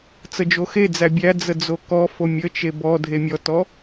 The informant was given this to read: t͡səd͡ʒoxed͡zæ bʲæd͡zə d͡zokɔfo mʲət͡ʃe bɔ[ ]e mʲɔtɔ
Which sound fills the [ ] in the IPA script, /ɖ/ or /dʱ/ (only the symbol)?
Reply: dʱ